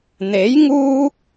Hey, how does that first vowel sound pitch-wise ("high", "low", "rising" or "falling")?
rising